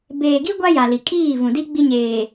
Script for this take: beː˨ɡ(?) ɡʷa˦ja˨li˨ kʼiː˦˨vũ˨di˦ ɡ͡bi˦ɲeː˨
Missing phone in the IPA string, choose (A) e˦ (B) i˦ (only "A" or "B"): B